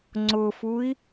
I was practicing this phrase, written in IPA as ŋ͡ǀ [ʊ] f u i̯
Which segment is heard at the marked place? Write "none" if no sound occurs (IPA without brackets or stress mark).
ʊ